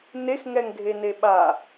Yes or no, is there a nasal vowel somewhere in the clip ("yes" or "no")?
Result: no